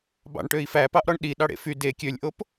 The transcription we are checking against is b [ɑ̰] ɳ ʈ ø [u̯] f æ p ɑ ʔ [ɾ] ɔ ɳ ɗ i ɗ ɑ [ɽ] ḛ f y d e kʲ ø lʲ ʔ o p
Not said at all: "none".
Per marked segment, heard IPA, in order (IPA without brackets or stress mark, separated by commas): ɑ̰, i̯, ɾ, ɽ